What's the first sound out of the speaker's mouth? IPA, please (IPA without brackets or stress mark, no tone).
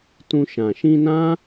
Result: t